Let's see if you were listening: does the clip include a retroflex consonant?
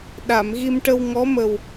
yes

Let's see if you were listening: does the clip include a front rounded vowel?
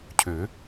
yes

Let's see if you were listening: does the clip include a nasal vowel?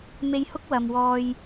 no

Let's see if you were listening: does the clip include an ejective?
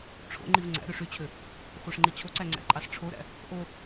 yes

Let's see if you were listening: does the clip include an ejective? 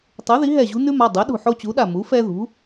no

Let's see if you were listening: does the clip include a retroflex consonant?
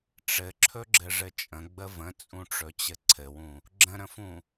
yes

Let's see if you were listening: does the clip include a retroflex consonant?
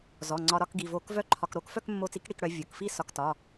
yes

